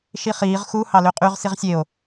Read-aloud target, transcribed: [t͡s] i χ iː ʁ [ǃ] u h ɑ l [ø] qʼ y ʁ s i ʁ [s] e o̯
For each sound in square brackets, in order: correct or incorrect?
incorrect, incorrect, correct, incorrect

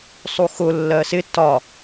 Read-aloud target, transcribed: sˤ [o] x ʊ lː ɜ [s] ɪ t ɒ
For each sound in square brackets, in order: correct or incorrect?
incorrect, correct

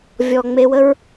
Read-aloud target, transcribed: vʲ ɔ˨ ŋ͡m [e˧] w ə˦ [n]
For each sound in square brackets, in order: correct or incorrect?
correct, incorrect

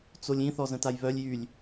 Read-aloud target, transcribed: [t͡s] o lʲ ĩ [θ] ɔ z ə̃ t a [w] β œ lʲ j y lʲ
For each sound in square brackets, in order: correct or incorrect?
correct, correct, incorrect

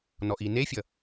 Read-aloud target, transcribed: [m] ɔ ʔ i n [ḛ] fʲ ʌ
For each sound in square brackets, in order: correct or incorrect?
incorrect, incorrect

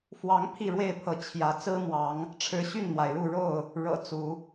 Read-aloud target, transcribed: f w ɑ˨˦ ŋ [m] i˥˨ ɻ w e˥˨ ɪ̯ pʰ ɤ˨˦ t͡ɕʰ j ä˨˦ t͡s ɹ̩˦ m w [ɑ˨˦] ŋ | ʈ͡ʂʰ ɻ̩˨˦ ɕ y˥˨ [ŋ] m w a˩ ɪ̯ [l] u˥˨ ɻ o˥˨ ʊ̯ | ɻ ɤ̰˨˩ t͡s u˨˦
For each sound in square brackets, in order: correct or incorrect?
incorrect, correct, incorrect, incorrect

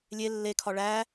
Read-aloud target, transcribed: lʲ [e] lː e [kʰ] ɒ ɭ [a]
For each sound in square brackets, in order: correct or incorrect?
correct, correct, incorrect

